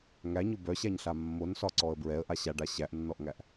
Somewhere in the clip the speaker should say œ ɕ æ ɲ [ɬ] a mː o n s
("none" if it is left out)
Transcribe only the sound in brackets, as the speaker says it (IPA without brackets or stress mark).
ɬ